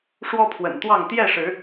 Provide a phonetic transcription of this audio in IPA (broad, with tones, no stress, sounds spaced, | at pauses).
ʂ w ɔ˦ pʰ w ə̰˨˩ n t̪ w ɑ˥˨ ŋ t̪ j ɛ˥˨ ʂ ɻ̩˨˦